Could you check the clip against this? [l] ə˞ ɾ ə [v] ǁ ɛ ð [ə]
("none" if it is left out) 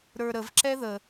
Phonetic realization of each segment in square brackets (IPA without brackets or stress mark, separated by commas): ɾ, v, ə